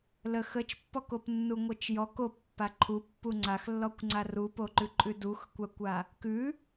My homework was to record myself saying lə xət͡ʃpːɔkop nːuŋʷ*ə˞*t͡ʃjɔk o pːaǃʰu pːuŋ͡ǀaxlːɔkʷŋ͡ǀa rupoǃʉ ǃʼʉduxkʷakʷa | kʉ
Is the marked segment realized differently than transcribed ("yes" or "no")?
yes